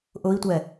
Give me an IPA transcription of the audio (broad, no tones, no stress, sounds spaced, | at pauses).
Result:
ʔ ʊ i̯ tʷ ɛ